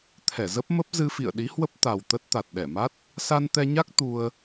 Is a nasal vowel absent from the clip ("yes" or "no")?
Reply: yes